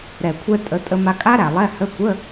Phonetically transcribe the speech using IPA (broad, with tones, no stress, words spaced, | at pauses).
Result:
ɾɛ˨˩kʷʰɛ˧ tʼə˨˥ tʼə˧ma˧kʼa˦˥ɾæ˨˩ lˠɛ˧˥˧hə˧˥˧ kʷə˧˥˧